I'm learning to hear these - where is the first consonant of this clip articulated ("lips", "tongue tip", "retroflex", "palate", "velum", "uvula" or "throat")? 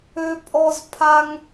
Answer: lips